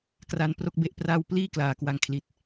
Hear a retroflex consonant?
no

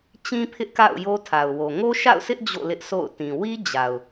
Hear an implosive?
no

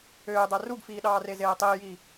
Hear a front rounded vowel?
yes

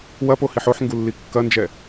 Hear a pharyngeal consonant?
yes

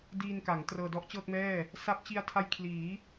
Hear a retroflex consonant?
no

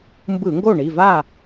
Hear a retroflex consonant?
yes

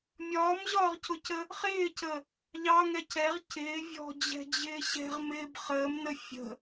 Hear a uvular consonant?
yes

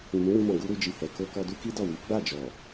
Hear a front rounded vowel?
no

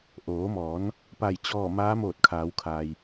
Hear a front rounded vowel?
no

